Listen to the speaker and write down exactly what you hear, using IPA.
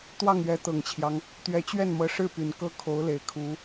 t̪ w ɑ˥˩ ŋ ɥ ɛ˧˥ t̪ ɤ˨˩ ŋ t͡ɕʰ j ɑ˦ ŋ | t̪ ɥ ɛ˧˥ t͡ɕ ɥ ɛ˥˩ n m ɤ˧˥ ʂ ɻ̩˥˩ p y˨˩ n k ɤ˥ kʰ o˧˥ ʊ̯ l e˨˩ ɪ̯ kʰ u˧˥

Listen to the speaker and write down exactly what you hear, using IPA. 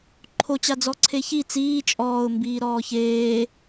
ǃʰ o t͡ɕ a d͡z ɔ ǀʰ e ç i t͡s iː t͡ʃʼ ɔː ʊ̯ m b iː ɾ ɔː ç eː

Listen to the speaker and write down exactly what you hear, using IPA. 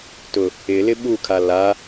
t ʊ | ɪ l ɪ ɓ u kʰ a l a

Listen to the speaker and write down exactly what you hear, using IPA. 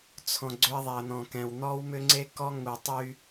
t͡sʰ ɔ̃˨ ɡ͡ǀ ʏ˦ ɐ̯ ðˤ ɛ˨ ɐ̯ n̪ ɔ̃˨ k ɛ̃˨ w n̪ ɔ˦ w m ʏ˦ ŋ͡ǀ e˦ k ɔ˦ ŋ u˨ tˤ y˦

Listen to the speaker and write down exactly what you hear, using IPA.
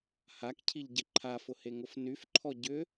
h a k cʰ i ʎ ɟ ɪ ǃʰ a f ʊ h e ŋ ʊ f n y f ǃʰ ɔ ɟ ʏ

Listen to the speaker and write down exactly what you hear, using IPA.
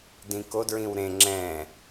d ĩ k o d ɹ ĩ w ɾ ẽ ŋ͡ǁ ɛ̃

